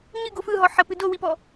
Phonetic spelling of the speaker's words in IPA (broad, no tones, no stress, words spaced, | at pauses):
ɲɨɡo fɯɦɔ ħəpɨ dowipɔ